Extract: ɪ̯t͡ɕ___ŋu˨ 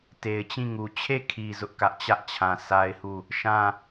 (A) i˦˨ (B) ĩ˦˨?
B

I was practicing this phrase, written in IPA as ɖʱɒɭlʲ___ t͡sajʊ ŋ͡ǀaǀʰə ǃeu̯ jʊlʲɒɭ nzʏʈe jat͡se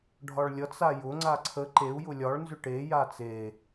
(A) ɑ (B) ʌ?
B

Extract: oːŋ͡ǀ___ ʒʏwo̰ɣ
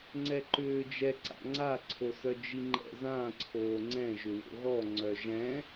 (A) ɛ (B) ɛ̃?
B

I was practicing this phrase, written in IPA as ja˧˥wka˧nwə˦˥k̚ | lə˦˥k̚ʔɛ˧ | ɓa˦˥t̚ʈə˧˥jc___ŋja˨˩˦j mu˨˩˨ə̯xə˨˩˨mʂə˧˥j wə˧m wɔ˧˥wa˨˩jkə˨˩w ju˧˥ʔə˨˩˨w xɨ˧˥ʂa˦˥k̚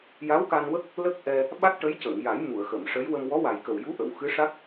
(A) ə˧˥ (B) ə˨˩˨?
B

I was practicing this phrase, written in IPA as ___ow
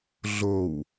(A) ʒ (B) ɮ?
B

